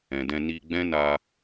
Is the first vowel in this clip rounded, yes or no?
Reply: no